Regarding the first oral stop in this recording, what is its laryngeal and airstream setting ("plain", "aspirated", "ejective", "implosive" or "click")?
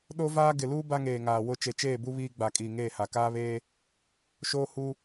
implosive